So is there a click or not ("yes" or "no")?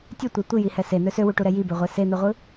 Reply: no